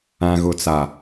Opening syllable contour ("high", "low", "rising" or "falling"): low